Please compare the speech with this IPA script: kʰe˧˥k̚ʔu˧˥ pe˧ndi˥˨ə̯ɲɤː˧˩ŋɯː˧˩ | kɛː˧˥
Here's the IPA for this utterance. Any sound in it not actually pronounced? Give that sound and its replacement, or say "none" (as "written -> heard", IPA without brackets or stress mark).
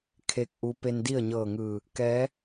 none